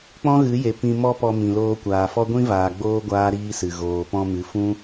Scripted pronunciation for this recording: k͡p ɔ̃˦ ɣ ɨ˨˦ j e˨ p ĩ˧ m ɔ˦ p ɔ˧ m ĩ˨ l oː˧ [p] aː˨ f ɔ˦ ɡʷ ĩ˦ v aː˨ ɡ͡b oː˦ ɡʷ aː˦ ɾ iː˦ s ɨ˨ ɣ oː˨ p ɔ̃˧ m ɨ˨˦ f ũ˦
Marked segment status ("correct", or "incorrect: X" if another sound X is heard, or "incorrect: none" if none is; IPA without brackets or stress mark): incorrect: kʷ